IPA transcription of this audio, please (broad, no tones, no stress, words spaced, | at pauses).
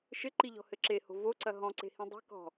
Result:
ʃɘǃiʎɔ̤hɘ ǁeho̤ voǀɐ ɦɔ̃ǀe̤hĩ dˤi̤kɔ̤